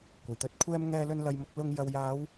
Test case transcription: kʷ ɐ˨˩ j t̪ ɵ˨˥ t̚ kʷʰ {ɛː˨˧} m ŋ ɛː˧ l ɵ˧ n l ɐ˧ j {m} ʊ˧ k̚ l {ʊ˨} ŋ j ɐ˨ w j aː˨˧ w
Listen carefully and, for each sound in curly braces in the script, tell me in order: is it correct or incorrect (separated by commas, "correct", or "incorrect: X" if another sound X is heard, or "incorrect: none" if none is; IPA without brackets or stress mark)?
incorrect: ɛː˧, correct, incorrect: ʊ˧